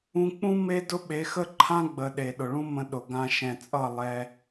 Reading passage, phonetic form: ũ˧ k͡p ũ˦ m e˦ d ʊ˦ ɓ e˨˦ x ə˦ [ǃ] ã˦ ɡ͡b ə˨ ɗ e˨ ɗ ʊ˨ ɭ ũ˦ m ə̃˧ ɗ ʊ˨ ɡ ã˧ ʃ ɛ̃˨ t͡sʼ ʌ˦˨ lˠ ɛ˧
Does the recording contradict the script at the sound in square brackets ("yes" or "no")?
yes